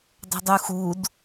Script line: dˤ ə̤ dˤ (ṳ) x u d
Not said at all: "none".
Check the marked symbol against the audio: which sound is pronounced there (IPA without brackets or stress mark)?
u